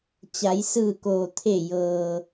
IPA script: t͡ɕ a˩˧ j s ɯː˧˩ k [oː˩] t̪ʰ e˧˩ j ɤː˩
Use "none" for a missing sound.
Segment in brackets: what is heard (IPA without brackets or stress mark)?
oː˩